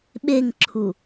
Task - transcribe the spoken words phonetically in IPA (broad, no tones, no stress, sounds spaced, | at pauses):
ɓ e ŋ ǁʰ u